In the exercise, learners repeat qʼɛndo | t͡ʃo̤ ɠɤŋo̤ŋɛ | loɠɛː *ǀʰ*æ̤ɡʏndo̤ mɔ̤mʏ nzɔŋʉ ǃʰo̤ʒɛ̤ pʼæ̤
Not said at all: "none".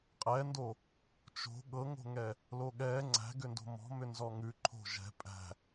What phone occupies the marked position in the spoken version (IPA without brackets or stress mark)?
ŋ͡ǀ